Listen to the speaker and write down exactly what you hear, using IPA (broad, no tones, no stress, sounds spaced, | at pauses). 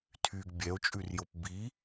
tʰ y ɡ bʲ ɛ o̯ t͡ʃʼ ʉ r j o p b i